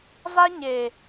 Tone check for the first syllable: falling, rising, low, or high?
high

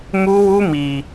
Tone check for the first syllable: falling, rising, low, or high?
high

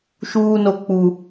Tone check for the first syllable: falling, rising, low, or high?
high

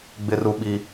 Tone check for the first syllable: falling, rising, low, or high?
high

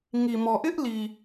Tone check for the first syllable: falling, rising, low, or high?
low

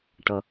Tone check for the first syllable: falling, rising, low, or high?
low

